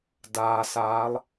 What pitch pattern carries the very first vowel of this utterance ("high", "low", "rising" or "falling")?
low